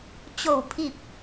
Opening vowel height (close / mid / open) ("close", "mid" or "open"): mid